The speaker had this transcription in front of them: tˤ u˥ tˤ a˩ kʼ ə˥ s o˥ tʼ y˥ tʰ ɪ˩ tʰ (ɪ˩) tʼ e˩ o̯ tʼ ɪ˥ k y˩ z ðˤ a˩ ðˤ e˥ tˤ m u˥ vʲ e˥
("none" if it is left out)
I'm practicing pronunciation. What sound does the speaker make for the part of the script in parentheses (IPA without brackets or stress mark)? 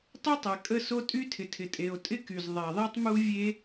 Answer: ɪ˩